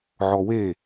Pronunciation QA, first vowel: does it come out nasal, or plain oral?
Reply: oral